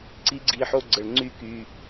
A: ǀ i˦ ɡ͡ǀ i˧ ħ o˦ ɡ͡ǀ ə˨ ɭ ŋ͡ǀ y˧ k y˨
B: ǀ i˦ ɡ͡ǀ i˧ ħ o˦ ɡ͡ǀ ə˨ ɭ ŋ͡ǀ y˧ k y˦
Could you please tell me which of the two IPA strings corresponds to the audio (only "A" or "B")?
A